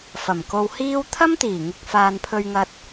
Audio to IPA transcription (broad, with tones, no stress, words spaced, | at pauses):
fɐ˨˩mko˧whiː˥w t̪ʰɐ˥mt̪iː˨˩ŋɪ˨k̚ faː˨npʰɵ˧ɥŋɐ˧t̚